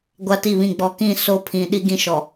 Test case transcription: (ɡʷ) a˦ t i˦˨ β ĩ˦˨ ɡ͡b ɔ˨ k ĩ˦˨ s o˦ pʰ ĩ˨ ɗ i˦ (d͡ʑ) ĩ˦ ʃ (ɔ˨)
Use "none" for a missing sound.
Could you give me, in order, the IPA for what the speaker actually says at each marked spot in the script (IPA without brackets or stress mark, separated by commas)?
ɡʷ, ɡ, ɔ˨